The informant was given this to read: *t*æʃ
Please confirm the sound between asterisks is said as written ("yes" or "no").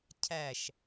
no